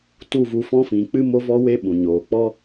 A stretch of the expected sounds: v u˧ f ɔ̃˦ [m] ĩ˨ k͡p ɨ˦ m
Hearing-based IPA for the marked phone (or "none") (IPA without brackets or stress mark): f